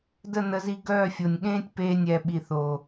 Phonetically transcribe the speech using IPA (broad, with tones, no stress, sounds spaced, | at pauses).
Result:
d ə˦˨ n ə˧ z i˧ ɡ œː˦˨ fʲ o˨ nʲ ɠ ẽː˦ tʲ p eː˧ nʲ ɛː˨ ɓ i˨ θ o˨